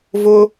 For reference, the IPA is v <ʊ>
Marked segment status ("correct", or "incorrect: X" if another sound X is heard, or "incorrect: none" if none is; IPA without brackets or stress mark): correct